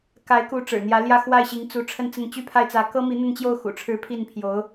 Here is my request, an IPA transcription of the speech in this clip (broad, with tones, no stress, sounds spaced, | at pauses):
k a˧˥ ɪ̯ k u˧˥ ʈ͡ʂ ɻ̩˨˩ n̪ j ä˧˥ l j ä˥˧ x w a˥˩ ɪ̯ ɕ i˧˥ ŋ t͡s u˧˥ ʈ͡ʂʰ ə˥˧ n t͡s ə˥˩ n t͡ɕ y˥ pʰ a˥˩ ɪ̯ t͡s ä˧˥ k ɤ˥ m i˧˥ n̪ ə˥˧ n t͡ɕ j o˥˩ ʊ̯ x ṵ˨˩ ʈ͡ʂʰ ɻ̩˧˥ pʰ i˥˩ n pʰ j o˧˥ ʊ̯